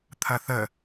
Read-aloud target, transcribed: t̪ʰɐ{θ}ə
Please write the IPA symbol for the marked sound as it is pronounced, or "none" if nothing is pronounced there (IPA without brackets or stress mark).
θ